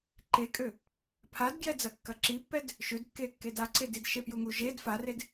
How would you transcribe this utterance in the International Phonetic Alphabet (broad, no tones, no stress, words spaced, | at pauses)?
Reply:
ǃekʼø | pʰadɡjɛd͡zɐ kːɐǁipːɛd | ʃødkːekːed aǀedidʃe pjuŋuʒed fared